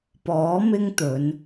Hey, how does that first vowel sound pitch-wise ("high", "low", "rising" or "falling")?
rising